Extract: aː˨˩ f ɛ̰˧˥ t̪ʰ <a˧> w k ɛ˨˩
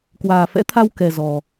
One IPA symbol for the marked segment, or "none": a˧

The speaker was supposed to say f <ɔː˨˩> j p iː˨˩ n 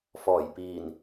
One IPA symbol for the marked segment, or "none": ɔː˨˩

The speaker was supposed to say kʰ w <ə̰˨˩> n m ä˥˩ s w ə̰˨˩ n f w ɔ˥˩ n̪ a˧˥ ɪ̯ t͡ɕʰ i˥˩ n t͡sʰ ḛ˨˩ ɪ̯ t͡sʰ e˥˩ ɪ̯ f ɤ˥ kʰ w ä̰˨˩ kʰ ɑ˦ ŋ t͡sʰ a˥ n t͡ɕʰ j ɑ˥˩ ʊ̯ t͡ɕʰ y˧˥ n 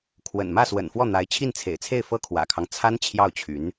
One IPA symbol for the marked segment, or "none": ə̰˨˩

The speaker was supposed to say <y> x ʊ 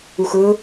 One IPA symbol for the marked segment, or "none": u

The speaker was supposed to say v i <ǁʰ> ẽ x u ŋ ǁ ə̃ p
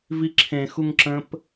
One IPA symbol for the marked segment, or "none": ǁʰ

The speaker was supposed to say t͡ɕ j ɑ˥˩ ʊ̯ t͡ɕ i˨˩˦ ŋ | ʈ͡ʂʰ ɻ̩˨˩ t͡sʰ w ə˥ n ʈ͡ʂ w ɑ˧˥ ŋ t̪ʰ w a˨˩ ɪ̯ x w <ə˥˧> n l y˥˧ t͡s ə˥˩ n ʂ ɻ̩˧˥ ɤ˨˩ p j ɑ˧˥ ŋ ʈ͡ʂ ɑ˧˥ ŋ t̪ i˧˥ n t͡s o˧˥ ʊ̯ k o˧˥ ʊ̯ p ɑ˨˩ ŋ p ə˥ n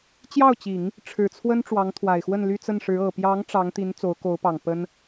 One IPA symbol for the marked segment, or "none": ə˥˧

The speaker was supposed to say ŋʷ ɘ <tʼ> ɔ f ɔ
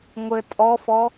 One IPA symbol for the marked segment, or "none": tʼ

